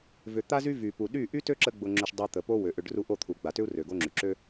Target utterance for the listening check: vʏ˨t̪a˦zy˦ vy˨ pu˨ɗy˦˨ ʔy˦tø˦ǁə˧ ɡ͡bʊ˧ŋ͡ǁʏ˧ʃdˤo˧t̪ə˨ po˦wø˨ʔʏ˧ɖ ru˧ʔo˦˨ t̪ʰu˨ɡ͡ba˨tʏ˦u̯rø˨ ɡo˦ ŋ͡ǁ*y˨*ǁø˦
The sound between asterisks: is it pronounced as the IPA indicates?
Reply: yes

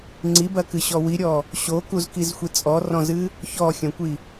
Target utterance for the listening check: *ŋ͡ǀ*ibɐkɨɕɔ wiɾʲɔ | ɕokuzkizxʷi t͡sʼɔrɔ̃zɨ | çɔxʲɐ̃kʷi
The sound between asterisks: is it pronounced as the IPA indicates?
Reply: yes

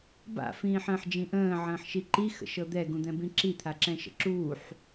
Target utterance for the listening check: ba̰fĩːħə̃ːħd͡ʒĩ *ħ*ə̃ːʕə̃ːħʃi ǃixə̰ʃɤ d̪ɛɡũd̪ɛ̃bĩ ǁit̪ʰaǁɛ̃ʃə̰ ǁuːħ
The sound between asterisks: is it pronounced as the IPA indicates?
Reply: no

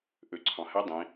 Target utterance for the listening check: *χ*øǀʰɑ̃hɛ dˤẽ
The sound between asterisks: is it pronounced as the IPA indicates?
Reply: no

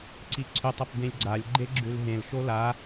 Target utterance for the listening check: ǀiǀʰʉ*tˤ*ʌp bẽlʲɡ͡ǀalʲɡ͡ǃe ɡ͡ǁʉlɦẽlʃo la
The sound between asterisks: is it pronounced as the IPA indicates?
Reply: yes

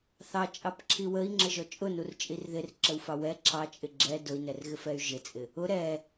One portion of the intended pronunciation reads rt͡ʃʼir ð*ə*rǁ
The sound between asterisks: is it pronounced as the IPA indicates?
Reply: no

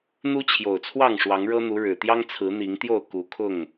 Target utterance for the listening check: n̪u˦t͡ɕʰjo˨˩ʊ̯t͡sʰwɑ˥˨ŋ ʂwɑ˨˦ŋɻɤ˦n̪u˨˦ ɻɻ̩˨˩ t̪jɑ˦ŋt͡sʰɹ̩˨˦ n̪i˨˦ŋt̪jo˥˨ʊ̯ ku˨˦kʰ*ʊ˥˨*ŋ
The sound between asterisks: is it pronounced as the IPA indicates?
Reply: yes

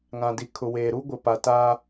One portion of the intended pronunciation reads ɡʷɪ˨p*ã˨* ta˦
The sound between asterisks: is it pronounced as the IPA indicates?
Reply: no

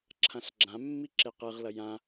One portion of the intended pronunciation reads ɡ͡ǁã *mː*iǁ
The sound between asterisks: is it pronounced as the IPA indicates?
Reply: yes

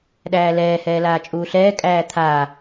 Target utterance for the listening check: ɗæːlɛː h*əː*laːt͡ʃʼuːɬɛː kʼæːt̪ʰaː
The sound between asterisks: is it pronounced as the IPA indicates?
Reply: no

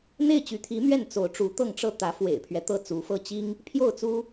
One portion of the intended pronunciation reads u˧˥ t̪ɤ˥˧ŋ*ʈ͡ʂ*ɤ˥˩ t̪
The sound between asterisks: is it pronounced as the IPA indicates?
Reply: yes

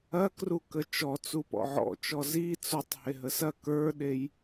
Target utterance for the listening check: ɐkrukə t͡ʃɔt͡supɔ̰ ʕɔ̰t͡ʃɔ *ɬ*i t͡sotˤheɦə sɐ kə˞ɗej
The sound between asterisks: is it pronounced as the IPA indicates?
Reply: no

